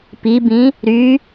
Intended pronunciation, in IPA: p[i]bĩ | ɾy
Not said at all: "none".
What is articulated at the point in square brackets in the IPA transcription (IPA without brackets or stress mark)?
i